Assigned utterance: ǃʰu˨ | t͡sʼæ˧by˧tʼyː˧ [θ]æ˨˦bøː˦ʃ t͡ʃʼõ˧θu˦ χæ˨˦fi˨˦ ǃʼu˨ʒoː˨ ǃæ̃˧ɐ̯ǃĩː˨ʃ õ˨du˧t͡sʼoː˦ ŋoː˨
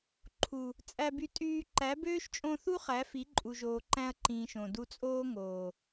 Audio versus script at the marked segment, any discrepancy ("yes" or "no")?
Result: yes